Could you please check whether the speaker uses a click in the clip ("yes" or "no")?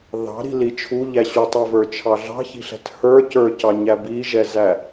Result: no